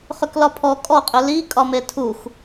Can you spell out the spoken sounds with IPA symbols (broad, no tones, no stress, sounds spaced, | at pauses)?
χ ʏ k l ɒ pʰ ɔ kʼ ɔ qʼ ʏ l i kʼ ɒ m e tʰ u x